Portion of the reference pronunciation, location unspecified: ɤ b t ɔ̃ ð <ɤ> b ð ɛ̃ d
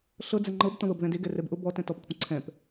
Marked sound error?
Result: no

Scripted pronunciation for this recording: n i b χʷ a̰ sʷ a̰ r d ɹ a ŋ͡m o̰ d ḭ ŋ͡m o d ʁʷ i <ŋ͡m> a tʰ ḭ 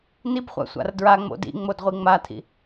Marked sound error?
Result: no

